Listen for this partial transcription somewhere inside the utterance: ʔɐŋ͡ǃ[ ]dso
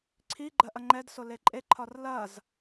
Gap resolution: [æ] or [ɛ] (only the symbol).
ɛ